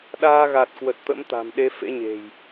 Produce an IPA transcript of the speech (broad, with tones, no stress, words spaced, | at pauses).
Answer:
ɗaː˧ɣa˨˩t̚kwə˨˩t̚ t̪ə̰˧˥mt̪a̤˨˩mɗe˨˦fḛ˧˥ ɲe̤˨˩j